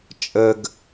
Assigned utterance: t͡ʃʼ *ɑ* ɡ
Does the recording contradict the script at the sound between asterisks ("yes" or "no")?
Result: yes